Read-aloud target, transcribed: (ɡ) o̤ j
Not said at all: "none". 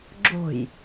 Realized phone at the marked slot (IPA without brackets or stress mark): ɡ͡ǁ